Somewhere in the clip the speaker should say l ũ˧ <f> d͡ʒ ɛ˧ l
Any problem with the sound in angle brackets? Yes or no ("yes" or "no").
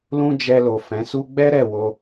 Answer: yes